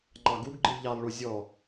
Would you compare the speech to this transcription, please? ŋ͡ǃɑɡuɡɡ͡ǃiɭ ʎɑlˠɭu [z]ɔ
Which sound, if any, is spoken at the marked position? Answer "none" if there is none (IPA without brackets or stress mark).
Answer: zʲ